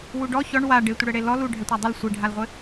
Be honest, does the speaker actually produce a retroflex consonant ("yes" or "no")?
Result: yes